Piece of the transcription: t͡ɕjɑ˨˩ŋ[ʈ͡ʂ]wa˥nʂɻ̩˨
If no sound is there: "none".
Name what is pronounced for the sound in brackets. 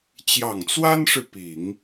t͡s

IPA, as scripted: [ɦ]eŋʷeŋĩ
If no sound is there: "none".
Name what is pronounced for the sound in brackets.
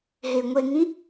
ɦ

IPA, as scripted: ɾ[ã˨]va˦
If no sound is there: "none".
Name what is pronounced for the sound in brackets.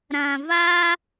ã˨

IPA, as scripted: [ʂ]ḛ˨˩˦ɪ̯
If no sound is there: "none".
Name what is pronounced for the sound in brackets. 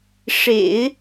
ʂ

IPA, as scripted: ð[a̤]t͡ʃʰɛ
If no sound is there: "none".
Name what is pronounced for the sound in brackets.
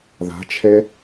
a̤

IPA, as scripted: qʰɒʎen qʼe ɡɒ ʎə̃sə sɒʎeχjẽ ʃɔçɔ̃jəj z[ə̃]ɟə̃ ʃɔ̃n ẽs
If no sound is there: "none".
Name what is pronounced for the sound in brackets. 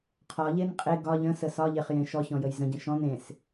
ə̃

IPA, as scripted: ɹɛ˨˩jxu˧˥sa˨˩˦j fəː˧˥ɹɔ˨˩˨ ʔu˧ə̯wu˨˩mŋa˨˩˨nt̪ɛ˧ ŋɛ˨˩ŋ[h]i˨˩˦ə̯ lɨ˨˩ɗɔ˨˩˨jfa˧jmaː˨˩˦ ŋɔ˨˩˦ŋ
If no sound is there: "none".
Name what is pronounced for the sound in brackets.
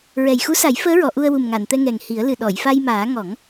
h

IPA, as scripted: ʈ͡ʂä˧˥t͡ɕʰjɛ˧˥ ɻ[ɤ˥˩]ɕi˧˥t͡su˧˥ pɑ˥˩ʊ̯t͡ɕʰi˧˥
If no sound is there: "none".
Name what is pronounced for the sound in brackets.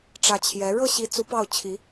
ɤ˥˩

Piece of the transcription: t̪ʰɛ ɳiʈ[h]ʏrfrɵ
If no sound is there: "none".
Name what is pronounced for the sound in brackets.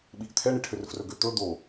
h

